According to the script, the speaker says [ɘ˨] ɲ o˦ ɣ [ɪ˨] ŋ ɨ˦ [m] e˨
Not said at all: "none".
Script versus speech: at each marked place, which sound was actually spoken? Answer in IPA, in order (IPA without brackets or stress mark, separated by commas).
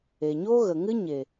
e˨, ə˨, ɲ